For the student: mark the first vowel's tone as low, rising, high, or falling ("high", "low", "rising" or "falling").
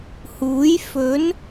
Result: rising